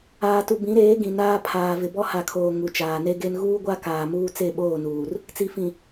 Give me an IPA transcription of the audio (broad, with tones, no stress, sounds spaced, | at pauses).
aː˨ t u˨ b ĩ˨˦ ɾ eː˨˦ ɡ ĩ˨ n aː˦ pʰ aː˨ v ɪ˨ b ɔ˦ h a˨ kʰ oː˨ ŋ u˨ t͡ʃ aː˨ n e˦ ɡ e˦ n ɣ uː˦ ɡʷ a˦ k aː˨ m uː˦ t͡s e˦˨ ɓ oː˦˨ n uː˨ r | t͡s i˨ f ĩ˨